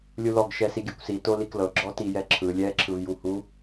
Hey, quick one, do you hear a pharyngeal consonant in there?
no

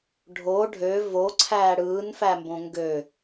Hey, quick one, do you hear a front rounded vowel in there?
yes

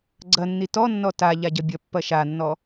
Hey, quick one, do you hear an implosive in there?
no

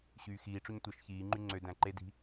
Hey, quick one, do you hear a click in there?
yes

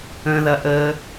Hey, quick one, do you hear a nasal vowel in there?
yes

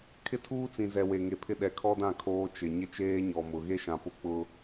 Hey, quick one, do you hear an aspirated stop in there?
yes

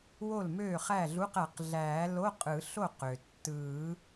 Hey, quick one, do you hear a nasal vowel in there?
no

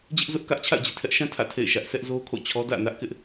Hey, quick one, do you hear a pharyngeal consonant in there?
no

